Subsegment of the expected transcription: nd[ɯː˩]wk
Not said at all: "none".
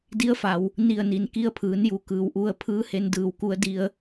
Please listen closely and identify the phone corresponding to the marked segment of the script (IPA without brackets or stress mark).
ɯː˧˩